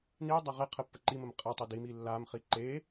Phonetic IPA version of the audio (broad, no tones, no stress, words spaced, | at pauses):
nidˤɐ ʁe qʰəpːəǃiməm qʼɐtˤed imi lːamχi ǃe